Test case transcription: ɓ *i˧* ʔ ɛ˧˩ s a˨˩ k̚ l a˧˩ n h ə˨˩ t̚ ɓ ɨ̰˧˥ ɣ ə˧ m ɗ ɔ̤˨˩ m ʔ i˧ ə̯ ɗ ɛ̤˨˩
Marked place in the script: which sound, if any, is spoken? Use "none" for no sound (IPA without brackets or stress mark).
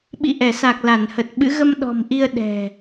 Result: ḭ˧˨